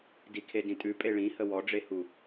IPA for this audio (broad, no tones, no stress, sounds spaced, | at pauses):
d i kʰ e d ĩ tʼ ʉ pʼ e ɭ ĩ h ə w ɔ ɖ͡ʐ e h u